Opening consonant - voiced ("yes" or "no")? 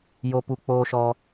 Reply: yes